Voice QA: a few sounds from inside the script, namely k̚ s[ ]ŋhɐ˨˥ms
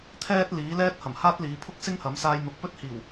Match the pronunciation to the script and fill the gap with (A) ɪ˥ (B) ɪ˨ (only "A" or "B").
A